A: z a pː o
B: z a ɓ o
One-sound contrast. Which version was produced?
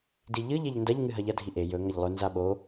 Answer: B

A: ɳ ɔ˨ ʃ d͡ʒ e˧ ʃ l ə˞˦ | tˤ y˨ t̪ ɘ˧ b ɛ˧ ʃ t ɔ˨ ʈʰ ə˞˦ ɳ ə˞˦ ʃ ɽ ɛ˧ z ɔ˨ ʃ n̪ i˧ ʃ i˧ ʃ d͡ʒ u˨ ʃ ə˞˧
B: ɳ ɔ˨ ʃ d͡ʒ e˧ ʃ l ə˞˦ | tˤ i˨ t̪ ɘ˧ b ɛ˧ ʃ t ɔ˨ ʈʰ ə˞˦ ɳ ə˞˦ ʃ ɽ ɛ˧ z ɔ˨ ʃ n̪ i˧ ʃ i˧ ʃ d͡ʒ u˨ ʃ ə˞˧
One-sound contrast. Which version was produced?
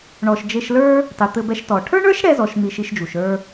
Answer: A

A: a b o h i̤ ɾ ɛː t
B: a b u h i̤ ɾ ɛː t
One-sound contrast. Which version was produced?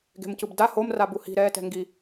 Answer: B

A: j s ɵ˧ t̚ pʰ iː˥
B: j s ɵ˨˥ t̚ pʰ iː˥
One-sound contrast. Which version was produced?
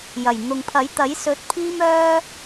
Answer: B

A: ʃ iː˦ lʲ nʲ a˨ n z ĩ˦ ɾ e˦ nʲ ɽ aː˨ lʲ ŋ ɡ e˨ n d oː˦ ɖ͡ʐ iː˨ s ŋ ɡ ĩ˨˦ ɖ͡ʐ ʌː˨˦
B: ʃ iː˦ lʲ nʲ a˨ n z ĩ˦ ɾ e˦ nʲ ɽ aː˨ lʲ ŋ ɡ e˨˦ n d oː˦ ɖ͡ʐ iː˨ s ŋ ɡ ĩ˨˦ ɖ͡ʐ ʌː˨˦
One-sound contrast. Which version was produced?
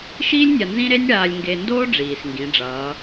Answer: A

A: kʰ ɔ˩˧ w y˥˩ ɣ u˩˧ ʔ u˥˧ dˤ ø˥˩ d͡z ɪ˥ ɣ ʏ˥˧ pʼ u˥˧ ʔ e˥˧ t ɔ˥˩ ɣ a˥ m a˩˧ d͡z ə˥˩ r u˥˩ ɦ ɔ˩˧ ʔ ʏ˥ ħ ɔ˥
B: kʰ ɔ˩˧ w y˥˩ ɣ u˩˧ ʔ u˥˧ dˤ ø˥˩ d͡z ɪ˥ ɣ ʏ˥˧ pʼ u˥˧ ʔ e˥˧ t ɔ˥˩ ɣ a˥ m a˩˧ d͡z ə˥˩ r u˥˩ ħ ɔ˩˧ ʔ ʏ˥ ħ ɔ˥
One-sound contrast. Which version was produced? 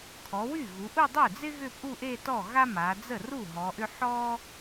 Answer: A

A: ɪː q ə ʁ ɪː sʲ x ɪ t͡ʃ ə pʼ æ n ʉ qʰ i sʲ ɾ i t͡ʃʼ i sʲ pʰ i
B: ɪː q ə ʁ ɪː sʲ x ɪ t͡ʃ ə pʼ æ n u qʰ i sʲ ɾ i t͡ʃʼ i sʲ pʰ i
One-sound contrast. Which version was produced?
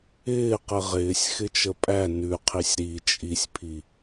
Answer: A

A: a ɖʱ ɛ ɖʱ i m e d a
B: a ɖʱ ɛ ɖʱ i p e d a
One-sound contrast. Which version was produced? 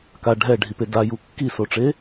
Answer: B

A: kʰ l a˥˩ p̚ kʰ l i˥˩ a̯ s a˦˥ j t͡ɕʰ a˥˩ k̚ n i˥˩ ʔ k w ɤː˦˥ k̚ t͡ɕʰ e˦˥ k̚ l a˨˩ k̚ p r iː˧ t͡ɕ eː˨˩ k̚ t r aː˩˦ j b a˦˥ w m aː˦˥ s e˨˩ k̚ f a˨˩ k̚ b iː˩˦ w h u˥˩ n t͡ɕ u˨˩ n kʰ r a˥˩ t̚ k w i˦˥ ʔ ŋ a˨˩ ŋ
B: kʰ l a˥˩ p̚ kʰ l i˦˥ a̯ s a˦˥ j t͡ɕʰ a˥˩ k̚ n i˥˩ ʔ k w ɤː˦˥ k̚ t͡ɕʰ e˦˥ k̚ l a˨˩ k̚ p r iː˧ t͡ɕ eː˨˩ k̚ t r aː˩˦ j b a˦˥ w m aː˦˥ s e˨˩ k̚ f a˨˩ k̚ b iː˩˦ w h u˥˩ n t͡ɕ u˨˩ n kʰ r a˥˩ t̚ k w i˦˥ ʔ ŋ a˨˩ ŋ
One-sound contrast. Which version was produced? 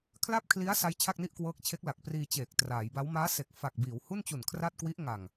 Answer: B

